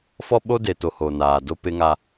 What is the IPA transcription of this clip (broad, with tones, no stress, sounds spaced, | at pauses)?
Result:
f ɔ˦ ɓ o˦ d e˨ t o˨ h o˨ n aː˨ d o˦ p ɪ˦ ŋ a˦